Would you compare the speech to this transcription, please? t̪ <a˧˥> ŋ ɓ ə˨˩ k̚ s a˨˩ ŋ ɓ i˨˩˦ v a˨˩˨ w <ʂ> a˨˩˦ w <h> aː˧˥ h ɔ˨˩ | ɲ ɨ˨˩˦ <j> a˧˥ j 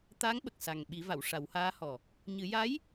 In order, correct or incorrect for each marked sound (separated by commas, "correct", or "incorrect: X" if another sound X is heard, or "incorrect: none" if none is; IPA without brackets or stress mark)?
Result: correct, correct, correct, correct